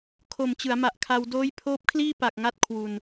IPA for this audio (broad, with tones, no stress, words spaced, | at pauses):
kʰo˨˩mt͡ɕɯ˩˦a̯ma˨˩ʔkʰa˧w doː˦˥j pʰoː˦˥p̚kʰliː˥˩pa˨˩k̚ŋa˦˥t̚ kʰwu˧n